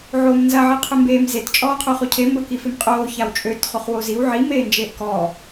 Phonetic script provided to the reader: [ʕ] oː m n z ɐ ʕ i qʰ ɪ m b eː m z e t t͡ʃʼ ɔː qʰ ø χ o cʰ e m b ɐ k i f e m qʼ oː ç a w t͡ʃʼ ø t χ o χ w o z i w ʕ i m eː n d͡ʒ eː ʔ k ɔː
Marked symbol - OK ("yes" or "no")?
yes